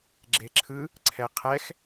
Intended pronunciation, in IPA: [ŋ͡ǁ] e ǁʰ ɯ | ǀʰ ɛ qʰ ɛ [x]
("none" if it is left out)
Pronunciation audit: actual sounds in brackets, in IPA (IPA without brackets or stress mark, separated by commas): ɡ͡ǁ, x